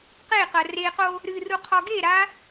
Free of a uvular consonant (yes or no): no